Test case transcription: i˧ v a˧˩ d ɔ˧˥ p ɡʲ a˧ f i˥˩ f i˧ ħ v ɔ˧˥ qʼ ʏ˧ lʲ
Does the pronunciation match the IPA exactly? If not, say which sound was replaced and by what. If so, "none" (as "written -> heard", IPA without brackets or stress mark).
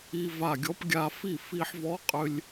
d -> ɡʲ